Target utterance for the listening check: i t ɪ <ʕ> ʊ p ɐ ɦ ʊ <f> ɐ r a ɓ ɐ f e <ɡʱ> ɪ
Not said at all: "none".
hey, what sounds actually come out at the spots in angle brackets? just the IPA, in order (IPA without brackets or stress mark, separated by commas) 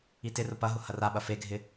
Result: r, h, ɡʱ